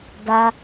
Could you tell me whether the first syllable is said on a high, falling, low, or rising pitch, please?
high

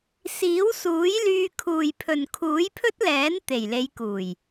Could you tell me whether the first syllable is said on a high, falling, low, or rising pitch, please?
rising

